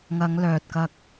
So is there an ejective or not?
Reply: no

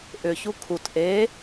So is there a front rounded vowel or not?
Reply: yes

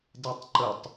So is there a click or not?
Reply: yes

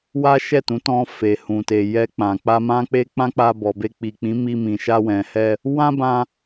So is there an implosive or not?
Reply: no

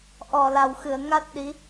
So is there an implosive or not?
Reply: yes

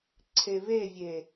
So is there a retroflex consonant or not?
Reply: no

